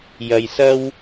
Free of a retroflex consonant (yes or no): yes